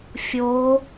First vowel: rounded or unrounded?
rounded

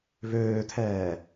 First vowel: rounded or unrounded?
rounded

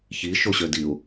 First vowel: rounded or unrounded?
unrounded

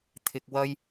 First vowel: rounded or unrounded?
unrounded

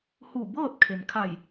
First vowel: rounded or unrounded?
rounded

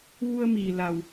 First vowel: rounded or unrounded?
rounded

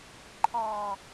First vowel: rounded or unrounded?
rounded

